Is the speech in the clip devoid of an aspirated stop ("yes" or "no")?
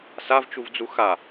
yes